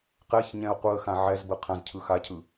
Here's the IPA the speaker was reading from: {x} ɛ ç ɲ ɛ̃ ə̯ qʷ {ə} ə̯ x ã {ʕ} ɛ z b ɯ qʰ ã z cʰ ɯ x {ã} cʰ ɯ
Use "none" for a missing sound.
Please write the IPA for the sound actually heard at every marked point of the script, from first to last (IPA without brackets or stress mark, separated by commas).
q, ɯ, ʕ, a